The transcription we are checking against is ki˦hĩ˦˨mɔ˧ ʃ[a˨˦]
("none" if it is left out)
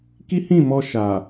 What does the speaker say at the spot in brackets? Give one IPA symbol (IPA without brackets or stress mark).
a˨